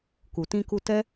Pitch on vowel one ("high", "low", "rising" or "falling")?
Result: low